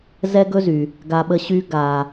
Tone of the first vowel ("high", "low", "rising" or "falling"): high